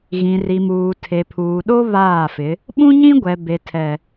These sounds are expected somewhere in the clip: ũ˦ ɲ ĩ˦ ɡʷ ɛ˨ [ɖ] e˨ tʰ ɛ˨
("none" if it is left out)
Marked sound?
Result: b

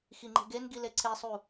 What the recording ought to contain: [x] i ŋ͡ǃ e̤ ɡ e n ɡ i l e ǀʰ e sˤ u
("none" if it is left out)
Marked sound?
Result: x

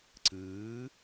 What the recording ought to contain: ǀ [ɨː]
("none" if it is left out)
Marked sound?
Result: ɨː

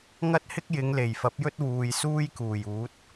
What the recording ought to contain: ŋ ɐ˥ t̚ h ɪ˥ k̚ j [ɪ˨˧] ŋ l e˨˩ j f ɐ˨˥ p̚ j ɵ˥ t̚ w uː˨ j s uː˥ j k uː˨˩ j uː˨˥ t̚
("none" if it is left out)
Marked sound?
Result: ɪ˨˧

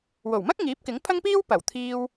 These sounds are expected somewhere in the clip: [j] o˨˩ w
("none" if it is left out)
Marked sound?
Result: w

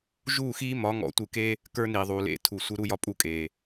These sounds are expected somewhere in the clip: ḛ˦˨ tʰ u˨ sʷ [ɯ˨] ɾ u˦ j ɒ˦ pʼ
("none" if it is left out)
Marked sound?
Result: ɯ˦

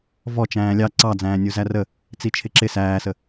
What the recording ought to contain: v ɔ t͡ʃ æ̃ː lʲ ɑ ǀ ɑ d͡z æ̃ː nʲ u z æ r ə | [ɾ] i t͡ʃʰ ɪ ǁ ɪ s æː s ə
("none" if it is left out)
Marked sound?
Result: t͡s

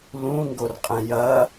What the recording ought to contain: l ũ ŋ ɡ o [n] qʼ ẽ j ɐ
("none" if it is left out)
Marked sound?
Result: r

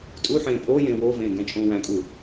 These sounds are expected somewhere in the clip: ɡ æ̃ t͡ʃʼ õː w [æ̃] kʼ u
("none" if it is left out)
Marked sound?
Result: æ̃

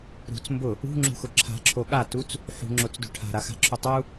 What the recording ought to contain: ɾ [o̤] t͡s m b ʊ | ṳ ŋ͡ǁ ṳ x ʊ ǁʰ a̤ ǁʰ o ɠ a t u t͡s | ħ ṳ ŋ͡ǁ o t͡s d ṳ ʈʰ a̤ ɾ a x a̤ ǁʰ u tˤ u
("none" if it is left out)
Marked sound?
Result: ṳ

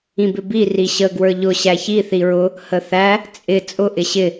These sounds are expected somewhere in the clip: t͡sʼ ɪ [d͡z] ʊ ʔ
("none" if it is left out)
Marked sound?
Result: t͡sʼ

